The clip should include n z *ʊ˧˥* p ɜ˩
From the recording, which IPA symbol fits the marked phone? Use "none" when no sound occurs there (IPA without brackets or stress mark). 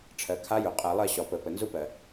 ʊ˧˥